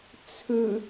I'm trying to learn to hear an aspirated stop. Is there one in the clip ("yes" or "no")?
yes